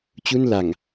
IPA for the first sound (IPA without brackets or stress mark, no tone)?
t͡ɕ